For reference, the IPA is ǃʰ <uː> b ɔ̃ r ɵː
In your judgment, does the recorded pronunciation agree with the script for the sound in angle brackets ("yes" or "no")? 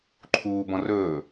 yes